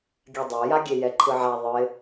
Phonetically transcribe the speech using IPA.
ɡʲ a dˤ a j a ɡʲ e j ɛ ǃʰ ɯ ʕ a ðˤ ɯ ɪ̯

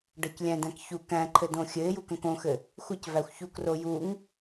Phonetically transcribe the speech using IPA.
ɖ ʌ c lʲ æ̃ d æ̃ k ç u k æ̃ ǃʰ ɘ d õ xʲ ɘ ɪ̯ j u k ə̃ k õ x ɘ | xʷ ɘ c v æ xʷ ç u k r o j u ŋ

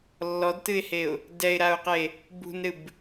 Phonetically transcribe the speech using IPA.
lː ɔ d t ɨ ɪ̯ h e ʊ̯ | d ɛ ɪ̯ ɾ a ʊ̯ q e | b ṳ n ɾ ɨ b

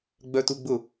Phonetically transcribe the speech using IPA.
ɡ͡b œ t u ɡ͡b ʊ

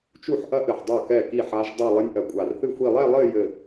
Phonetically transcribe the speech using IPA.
t͡ʃ u˥˩ ħ ʔ ɐ˦˥ ʔ ɘ˧˩ ħ dˤ o˥˩ k ɛ˥˩ k i˥˩ ħ a˦˥ ʒ dˤ ɛ˥˧ lˠ ɘ˦˥ nʲ ʔ ɐ˧˩ kʷʼ a˧˩ r θ ɨ˥˧ xʷ i˥˧ lˠ ɛ˥˧ lˠ ɘ˥˧ j ɘ˥˧

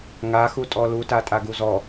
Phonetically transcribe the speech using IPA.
ŋ a x u tʼ ɔ l u t a tʼ a ɡ u z ɔ

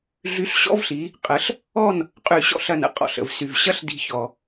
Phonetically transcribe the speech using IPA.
ɮ y˧˥ ɬ ɕ ɔ̰˧˥ v ɬ i˩˧ | qʼ ə˩˧ ɬ | ɔ˥˨ n | qʼ y˧˩ ɕ ɔ̰˥˨ ɬ ɐ˧˩ n ə̰˩˧ qʼ ɔ̰˧˩ ɬ ə̰˩ v s y˩ v ɕ ɐ˥˨ ɬ d i̤˧˩ ç ɔ˩

